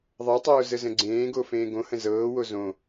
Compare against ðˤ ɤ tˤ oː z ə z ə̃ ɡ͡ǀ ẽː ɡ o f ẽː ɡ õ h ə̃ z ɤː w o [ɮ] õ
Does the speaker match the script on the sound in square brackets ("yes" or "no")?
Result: no